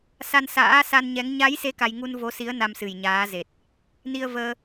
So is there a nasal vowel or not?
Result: no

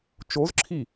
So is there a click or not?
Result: yes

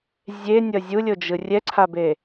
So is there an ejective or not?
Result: no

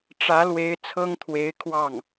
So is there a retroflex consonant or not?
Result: yes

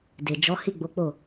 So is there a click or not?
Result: no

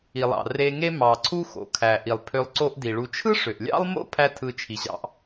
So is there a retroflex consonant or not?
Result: yes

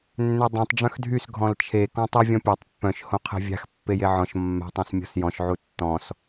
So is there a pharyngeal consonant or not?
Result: yes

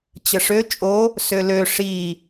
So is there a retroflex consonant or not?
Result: yes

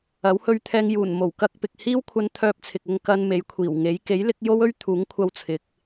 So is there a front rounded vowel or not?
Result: yes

